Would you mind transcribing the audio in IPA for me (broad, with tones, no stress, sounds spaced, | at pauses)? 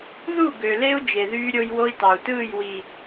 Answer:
ð u˦˨ ɡ ø˨ l e˦ u̯ d͡ʒ e˨ ð yː˦ ɾʲ o˦ j w o˦ i̯ t ɑ˨ u̯ t ɯː˦˨ j w i˨